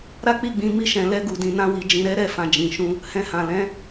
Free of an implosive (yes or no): yes